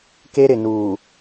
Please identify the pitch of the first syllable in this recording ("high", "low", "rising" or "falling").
high